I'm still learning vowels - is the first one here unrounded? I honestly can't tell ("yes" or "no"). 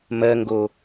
yes